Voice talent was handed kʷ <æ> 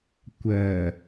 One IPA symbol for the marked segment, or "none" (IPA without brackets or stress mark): ɜ